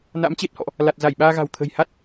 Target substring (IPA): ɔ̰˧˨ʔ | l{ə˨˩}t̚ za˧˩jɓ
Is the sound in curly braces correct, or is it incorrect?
incorrect